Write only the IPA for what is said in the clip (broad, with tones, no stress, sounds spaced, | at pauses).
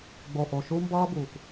ɡ͡b o˨ ʔ o˨ ʃ u˦ m b ʌː˦ b uː˨ k